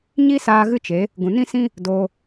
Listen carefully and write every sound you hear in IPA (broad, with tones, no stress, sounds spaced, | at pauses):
ɲ i˦ s aː˧ ɣ ɨ˦ t͡ʃ e˨˦ | ɡ ũ˨ n ĩ˦ s ĩ˦ | d oː˧